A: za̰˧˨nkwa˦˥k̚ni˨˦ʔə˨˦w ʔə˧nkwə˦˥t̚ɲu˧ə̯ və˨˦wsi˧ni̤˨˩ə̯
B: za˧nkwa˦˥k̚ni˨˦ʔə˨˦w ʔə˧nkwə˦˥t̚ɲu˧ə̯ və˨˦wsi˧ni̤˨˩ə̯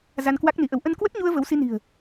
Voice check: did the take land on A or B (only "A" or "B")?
B